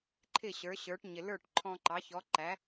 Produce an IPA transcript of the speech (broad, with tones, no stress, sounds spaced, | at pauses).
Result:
ǃʰ ɪ˥˩ ɕ ə˞˩˥ ɕ ə˞˩˥ ʈ ɲ ɪ˩ l ə˞˥˩ ʈ ǃʰ ɔ̃˧ ǃ ɑ˩˥ ç ɔ˩˥ ǃ æ˩˥